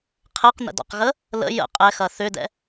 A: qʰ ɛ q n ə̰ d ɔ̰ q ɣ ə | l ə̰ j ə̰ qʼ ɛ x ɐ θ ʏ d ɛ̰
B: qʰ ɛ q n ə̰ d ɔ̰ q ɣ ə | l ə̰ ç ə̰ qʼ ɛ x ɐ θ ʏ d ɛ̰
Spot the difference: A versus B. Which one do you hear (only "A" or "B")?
A